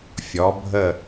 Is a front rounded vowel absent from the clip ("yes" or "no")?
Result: yes